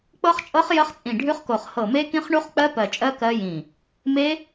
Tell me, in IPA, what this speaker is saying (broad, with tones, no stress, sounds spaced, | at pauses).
k͡p ɤ˦˥ χ t͡ʃʼ ɤ˦˥ χ j ə˦˥ χ t͡sʼ ĩ˧˩ ɖʱ ʉ˦˥ χ k o˧˩ χ h ɤ˧˩ m e˦˥ k ĩ˦˥ χ ɳ u˦˥ χ k͡p ɜ˦˥ p ɜ˧˩ t͡ʃʼ ɜ˦˥ k ɜ˦˥ j ĩ˧˩ | m e˦˥